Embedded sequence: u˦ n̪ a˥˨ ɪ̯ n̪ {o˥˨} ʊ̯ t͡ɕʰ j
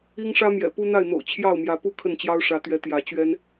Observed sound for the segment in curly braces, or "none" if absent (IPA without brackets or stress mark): o̰˨˩